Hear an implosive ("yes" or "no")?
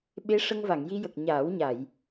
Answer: yes